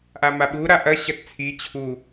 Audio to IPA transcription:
ʔ a m a ɓ u ɾ a ʔ ɐ ɕ ɐ t t͡sʰ i t͡ɕʰ u

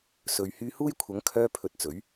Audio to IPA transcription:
s ɵ˨ ɥ h yː˧ h uː˥ j kʷʰ ɐ˨˥ ŋ kʰ œː˧ pʰ ɵ˨˥ t̚ t͡s ɵ˨˥ ɥ

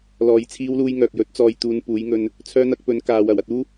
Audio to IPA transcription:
l ɔː˨ j t͡sʰ iː˥ w l uː˥ j ŋ œː˨ k̚ j ɵ˨˥ t̚ t͡s ɔː˨˧ j t̪ uː˨˧ n p uː˨˥ j ŋ ɵ˧ n | t͡sʰ œː˥ n̪ ɐ˥ k̚ p ɵ˨˥ n k aː˨˧ w ɐ˨˩ w ɐ˧ t̚ uː˥

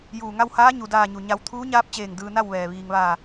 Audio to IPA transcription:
j uː˧˩ ŋ a˥˨ w h aː˧˥ ɲ u˩˧ d aː˥˨ ɲ u˧˩ ɲ a˧ w t̪ʰ uː˧˥ ɲ aː˧˥ p̚ t͡ɕ eː˧˩ ŋ d ɯː˧ n a˥˨ w ʋ ɛː˩ ʋ iː˩ ŋ ʋ aː˧˩

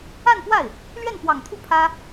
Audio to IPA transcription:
a˥˧ n p w a˥˩ ɪ̯ | l ɥ ɛ˥˩ n p w ɑ˨˩ ŋ t̪ʰ u˥˩ pʰ ä˥

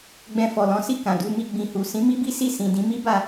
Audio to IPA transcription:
ɡ͡b ɛ̃˧ f ɔ˨ l ɔ̃˨˦ s i˦˨ k ã˨ d u˧ m i˧ ɡ͡b ĩ˨ h u˨ s ĩ˨˦ m i˦ b i˦ s i˦˨ s ĩ˨ d ĩ˨˦ m i˦ b a˦˨

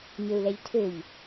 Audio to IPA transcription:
ɲ ø u̯ l ɛ ʎ tʰ ø ʎ

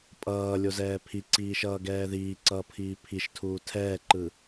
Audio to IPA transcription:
pʼ ʌː lʲ o z ɛː pʰ i ǀ iː ʃ ʌː ɡ ɛː ð iː ǀ ʌː pʰ iː pʰ i ʃ tʰ uː tʰ ɛː ǃ ɯ

